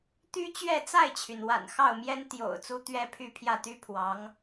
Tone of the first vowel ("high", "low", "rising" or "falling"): high